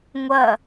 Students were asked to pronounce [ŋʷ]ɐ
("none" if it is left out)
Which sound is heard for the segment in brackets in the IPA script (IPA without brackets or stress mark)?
ŋʷ